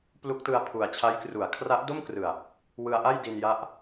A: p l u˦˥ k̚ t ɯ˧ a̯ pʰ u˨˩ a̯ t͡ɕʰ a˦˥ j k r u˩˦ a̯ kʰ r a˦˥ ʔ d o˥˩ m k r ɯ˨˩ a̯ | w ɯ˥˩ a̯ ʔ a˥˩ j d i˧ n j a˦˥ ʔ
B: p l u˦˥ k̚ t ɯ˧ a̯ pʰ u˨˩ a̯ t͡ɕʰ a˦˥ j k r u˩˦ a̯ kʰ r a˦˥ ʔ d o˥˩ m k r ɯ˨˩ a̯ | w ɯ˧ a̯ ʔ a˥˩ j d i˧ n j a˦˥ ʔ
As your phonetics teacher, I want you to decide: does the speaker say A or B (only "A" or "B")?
B